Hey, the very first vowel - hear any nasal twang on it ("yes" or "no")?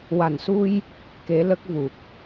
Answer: no